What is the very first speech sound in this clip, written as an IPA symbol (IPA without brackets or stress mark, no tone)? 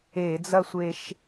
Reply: e